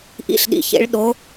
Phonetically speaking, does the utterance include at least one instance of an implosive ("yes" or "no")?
yes